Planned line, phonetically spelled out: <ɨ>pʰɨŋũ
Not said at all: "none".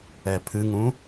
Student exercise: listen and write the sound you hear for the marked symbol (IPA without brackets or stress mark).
ɛ